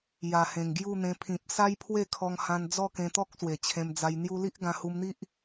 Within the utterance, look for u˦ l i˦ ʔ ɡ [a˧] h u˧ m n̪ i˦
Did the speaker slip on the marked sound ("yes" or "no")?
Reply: yes